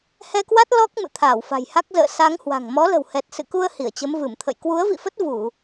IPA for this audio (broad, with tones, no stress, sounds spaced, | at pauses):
h ɛ˧ k w a˦˥ t̚ l ɔ˦˥ k̚ m ɨ̰˧˨ t̪ʰ aː˧˩ w f a̤˨˩ j h a˦˥ k̚ z ə̰ː˧˨ s a˨˦ ŋ h w a̤˨˩ ŋ m ɔ˨˦ l ə̤˨˩ w h ɛ˨˩ t̚ s ɨ̰˧˨ k u˧ ə̯ h i˧˩ ə̯ t͡ɕ ə˨˦ m v ɨ˧˩ m t̪ʰ ə̰˧˨ j k w u˨˦ ə̯ v ḭ˧˨ f ə˦˥ t̚ v u˧˩˨